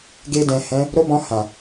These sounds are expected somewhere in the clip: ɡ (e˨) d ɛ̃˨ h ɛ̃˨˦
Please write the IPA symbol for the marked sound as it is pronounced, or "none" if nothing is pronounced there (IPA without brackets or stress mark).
e˧